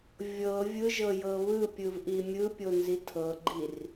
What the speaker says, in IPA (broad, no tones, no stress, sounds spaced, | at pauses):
vʲ ɤ vʲ ɯ ʒ ɤ j ɤ β ɯ pʲ ɯ v ʔ i mʲ ɯ pʲ o n z i tʰ ɤ ɡ͡ǃ i r